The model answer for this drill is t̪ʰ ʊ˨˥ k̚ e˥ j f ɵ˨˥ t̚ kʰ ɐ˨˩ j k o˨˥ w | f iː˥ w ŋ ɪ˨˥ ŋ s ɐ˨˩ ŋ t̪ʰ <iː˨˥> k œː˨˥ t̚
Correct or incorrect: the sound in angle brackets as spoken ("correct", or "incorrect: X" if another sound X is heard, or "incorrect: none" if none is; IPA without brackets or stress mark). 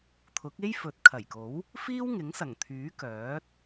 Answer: incorrect: yː˨˥